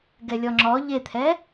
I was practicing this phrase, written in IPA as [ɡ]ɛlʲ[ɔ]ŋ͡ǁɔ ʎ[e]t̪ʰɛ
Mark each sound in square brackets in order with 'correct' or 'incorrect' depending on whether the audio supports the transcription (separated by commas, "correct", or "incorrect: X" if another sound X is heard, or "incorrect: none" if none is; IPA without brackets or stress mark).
correct, correct, correct